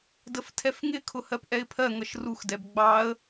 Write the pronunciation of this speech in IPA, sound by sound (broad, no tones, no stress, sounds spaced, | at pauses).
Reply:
d ə f tʰ ɛ f ŋ ɪ kʰ ʊ h ɜ p ʔ ɛ ɪ̯ pʰ ɜ ŋ ʌ ʃ r u x d ɛ b ɡ͡b ɑ ə̯